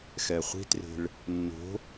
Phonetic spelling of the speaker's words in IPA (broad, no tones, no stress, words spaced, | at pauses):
xɛχʷi̤tre̤ɭ | nːo̤